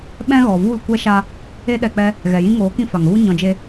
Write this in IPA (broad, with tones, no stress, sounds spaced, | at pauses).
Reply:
ɓ ɛ̃˦ ɣ ɔ˨ v u˦˨ l kʷ ɛ˦ ʃ a˦ | e˧ ɗ ɛ˨ k͡p ɛ˧ | ɣ ɛ˨ j ĩ˧ ŋ oː˨˦ k ĩ˧ f a˨ ŋ ɣ u˦ ɲ ɔ̃˧ d͡ʒ e˦